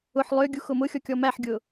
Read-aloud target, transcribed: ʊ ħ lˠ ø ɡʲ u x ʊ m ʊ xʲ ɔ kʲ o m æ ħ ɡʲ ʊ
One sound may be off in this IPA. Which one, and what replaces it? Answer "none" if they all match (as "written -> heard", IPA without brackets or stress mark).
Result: o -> ɔ